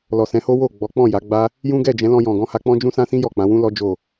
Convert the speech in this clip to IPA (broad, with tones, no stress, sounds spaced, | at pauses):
l ɔ˨ s ɛ̃˨˦ h o˦ w o˦˨ ɡ͡b ɔ˨˦ k͡p ɔ̃˦˨ j a˨˦ ɡ͡b a˦ | j ũ˦ ɡ ɛ˦˨ d͡ʒ ɛ̃˨˦ l ɔ̃˧ j ɔ̃˨ ɡ ɔ̃˧ h a˧ k͡p ɔ̃˦ d͡ʒ ũ˦ s ã˦ s ĩ˦ j ɔ˦˨ k͡p ã˨˦ w ũ˦ l ɔ˦ d͡ʒ o˦˨